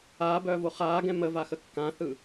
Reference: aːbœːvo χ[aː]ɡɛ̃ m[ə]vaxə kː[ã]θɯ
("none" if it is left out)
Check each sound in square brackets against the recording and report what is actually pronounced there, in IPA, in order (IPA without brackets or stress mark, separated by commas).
aː, ə, ã